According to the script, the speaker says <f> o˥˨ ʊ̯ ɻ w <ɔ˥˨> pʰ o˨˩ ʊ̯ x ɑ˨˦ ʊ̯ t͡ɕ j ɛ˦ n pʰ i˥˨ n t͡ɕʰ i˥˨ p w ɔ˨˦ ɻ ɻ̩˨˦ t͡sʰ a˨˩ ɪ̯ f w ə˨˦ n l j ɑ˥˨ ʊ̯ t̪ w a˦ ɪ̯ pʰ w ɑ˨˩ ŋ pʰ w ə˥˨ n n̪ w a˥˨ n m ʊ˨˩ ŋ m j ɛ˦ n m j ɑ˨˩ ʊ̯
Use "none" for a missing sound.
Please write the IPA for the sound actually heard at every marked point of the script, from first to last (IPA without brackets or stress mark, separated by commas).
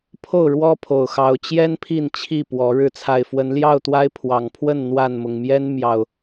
pʰ, ɔ˦